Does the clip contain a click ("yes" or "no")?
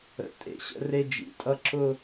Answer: yes